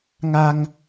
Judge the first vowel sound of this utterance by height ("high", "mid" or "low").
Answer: low